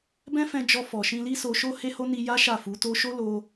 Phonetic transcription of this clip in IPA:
bɛ̃˦fɛ̃˧ d͡ʒɔ˧fɔ˨ ʃĩ˧li˦so˧ʃo˦ he˦ho˦ ni˧ja˦ ʃa˦˨fu˨˦to˦ ʃo˦lo˧

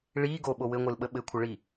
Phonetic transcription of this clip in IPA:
ɭi ɡoɓo wɘŋʷɯlɓə ɓɘkʷʰəɭi

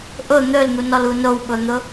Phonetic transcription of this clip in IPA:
ʔʊ n̪ɵln̪unɔlu nowɓʊn̪ʊ

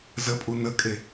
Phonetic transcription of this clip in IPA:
zəpʼu nəkʼe

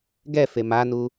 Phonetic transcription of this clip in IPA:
ɡɛ femanu

